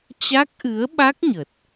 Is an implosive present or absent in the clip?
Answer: present